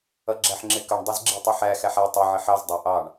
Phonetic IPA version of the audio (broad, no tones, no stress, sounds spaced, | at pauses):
ʌ ɡ͡ǁ æ ħ ŋ͡ǁ ɪ k ʌ ɳ dˤ i z ɡ͡ǁ i tˤ ʊ ħ æ x æ ħ æ tˤ ʌ ʕ ɪ ħ ɑ z dˤ ʌ ʔ ɑ ɳ